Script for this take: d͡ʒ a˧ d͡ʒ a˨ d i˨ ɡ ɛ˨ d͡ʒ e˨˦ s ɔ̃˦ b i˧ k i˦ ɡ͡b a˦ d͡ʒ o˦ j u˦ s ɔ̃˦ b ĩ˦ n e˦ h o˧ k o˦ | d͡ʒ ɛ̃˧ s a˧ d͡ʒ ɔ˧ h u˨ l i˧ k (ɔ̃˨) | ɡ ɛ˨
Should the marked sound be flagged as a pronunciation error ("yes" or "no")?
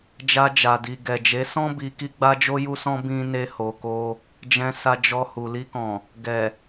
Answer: no